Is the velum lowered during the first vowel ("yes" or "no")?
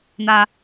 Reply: no